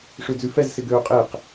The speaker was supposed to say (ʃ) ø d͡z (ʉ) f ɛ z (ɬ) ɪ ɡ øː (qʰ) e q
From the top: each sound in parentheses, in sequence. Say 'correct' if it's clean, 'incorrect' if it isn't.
incorrect: ʂ, correct, incorrect: s, incorrect: qʼ

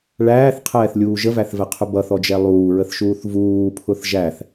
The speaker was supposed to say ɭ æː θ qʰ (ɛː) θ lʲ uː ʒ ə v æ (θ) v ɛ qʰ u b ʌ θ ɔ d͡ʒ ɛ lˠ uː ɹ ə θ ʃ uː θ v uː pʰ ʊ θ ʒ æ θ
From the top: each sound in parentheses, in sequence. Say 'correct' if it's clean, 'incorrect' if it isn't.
correct, correct

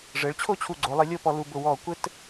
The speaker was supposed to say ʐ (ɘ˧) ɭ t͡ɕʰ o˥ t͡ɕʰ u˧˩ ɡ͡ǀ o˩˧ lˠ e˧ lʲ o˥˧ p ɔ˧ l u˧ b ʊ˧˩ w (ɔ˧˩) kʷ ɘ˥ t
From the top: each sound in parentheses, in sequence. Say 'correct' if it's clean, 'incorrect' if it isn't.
incorrect: ɘ˩˧, correct

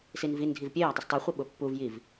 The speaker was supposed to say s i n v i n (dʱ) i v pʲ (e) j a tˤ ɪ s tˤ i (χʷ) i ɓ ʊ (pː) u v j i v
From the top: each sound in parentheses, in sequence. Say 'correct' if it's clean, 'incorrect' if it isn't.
correct, correct, correct, correct

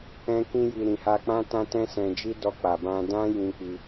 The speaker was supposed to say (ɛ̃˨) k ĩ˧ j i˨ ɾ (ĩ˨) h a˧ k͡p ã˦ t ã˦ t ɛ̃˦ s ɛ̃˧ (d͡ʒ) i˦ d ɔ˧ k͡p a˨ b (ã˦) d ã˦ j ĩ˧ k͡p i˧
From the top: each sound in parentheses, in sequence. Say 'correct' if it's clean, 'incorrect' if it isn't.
incorrect: ɛ̃˧, correct, correct, incorrect: ã˧

